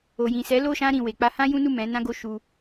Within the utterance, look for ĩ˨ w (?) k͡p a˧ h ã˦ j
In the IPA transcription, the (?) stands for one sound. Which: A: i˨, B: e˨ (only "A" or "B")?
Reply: B